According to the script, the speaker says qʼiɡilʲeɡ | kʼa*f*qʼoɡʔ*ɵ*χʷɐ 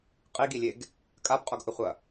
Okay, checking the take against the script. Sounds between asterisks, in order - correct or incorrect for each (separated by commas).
incorrect, correct